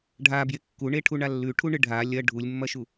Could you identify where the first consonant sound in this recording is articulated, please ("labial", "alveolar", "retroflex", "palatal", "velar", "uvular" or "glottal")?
retroflex